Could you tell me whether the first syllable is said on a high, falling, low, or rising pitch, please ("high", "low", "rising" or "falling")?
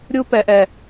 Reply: high